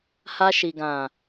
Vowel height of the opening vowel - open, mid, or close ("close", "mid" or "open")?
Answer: open